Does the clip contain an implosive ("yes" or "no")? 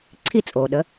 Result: yes